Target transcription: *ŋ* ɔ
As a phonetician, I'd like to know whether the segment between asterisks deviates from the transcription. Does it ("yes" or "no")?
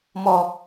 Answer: yes